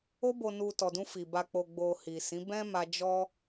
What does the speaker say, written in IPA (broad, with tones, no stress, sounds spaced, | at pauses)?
o˧ b o˨ n u˨ t ɔ˨ d ũ˧ f i˨ b a˨ k͡p o˨ ɡ͡b o˨ h i˨ s ĩ˨˦ b ɛ̃˦ m a˧ d͡ʒ ɔ˦